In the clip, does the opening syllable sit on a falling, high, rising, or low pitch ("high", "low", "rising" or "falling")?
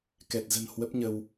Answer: low